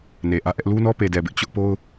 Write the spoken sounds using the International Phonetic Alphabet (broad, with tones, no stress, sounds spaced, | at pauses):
n e˨ ʔ ä˦ ʔ ɛ˦ ʔ l u˦ n ɔ˦ p e˨ d ɛ˨ b ɪ˦ ʔ t͡ɕ ʊ˦ ʔ p o˦ ʊ̯